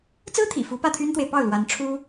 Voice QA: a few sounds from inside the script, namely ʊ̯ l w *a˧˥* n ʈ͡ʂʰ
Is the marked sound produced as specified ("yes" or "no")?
yes